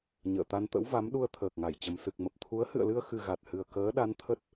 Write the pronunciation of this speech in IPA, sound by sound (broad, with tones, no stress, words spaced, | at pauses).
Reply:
ɲə̰ː˧˨t̪a˧nt̪ə̰˧˥wva˨˦m ɗu˧ə̯t̪ʰəː˨˩k̚ŋa˧˩jt͡ɕə˨˩m sɨ˨˩k̚mə˨˩p̚t̪ʰu˨˦ə̯ hɨ̰˧˨ə̯lɨ˧ə̯ xɨ˨˩ ɣa˨˩t̚hɨ˨˩ə̯ kəː˨˦ɗa˨˦nt̪ʰə˦˥t̚